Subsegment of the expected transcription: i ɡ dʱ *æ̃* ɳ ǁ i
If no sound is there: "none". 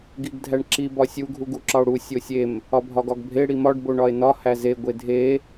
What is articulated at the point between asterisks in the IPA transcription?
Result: æ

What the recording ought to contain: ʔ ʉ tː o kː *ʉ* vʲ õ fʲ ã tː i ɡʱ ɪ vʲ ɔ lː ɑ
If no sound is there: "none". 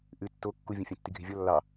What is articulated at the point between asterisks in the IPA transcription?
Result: u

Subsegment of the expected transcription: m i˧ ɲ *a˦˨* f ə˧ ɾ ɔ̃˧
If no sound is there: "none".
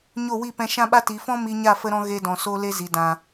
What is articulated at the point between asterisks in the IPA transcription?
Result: a˦˨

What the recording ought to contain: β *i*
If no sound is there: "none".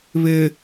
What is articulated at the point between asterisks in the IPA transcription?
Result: ɪ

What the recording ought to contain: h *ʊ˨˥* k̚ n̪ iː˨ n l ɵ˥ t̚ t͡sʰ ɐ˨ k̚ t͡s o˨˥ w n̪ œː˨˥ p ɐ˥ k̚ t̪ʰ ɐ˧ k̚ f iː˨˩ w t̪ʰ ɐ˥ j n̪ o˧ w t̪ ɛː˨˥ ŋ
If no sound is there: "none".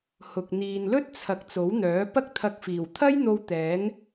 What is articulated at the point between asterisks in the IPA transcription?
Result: ʊ˨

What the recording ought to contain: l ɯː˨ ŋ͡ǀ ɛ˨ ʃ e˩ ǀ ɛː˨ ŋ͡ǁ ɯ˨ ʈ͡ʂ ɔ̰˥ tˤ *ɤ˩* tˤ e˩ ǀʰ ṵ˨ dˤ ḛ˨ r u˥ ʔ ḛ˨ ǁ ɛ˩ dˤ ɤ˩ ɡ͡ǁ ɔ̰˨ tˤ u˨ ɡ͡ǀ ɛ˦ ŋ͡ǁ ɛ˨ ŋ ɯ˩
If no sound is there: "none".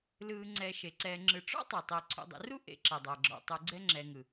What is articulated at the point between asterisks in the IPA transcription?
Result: ɤ˩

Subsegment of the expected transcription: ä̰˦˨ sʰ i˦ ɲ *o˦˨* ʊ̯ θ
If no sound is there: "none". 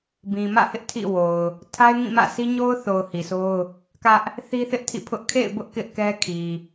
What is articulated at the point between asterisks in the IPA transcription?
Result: o˦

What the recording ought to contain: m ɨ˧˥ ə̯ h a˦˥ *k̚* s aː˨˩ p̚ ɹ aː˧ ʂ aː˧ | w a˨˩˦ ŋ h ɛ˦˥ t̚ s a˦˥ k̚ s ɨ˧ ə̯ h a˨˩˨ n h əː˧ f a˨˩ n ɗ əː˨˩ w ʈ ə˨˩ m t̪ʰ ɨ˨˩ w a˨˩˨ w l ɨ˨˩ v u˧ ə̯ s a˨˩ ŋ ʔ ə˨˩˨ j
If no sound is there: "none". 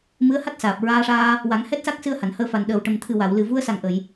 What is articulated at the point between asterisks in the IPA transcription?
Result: t̚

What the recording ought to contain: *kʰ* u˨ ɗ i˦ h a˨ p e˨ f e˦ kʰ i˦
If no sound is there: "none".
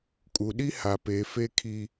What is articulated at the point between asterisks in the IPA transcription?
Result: kʼ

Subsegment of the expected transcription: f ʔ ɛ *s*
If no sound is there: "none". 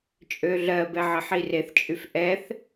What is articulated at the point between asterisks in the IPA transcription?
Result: θ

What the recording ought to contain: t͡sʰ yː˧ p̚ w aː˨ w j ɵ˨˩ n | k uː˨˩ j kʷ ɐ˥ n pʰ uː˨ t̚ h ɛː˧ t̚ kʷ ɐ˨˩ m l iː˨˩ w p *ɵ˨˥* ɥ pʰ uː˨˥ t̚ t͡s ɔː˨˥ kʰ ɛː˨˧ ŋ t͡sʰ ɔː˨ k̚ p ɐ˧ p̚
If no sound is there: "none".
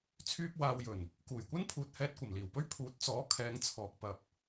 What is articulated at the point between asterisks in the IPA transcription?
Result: ɵ˥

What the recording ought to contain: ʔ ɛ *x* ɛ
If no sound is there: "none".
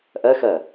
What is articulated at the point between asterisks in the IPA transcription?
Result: x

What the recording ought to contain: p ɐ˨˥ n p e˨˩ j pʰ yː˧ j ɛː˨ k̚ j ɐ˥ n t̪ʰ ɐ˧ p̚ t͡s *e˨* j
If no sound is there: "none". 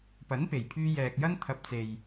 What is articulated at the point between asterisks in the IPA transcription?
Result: e˨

